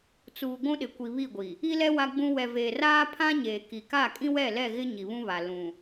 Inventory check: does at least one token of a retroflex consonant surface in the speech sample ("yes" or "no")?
no